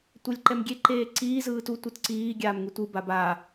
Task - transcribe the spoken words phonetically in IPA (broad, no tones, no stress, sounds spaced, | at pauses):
tʷ ɛ lʲ ǃ ɛ m ɡʲ e ǃ eː ǀ iː z ɯː t u tʷ ɯ t ǀ iː ɡʲ aː m ŋ ɯ tʷ ɯ b a b a